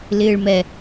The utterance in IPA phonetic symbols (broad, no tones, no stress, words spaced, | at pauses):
lɪːɭmɛ